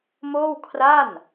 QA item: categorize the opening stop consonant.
aspirated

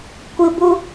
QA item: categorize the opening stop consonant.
plain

